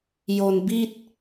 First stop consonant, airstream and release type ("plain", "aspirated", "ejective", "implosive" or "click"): plain